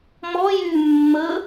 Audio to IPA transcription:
mɔ jy mːə

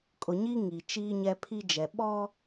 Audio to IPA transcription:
kʼʊ˨ɲi˦ ŋi˨ t͡ʃiː˦ɲɛ˦pʰi˦d͡ʒɛ˨ ɓɔ˦

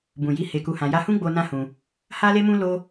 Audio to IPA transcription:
bũ˨ji˨˦ he˧ku˧hã˧ja˦ hũ˦ɡ͡bo˧ nã˦hũ˧ | ha˧le˧mũ˧ lo˦

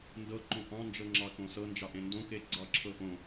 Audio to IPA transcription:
ndɤǃõ ʔɑ̃nd͡ʒɤŋ͡ǁɑkõ sɤnd͡ʒɑʔẽ ndõke ɡ͡ǀɑǁʰɤ ʔõ

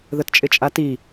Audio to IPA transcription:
ðətt͡ʃʼɪt͡ʃʼati

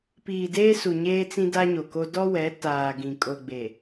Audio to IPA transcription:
piː˨deː˦ su˨ɲeː˦t͡sĩ˦ da˦ɲo˨ko˦ dɔ˦wɛ˨˦ taː˨ɡĩ˨ kʼo˨ɡ͡be˨

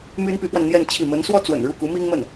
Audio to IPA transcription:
my˥npy˧˥pwa˧nn̪jɛ˥˧n t͡ɕʰi˥˩ mə˧˥nswɔ˥t͡swə̰˨˩n ɻu˥˩ ku˧˥mi˥ŋmə˥˩n

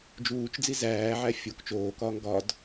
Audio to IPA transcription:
d͡ʒuːt͡ʃd͡zi zæːʕæ fʲok t͡ʃoːkɒːŋ ɡɒd

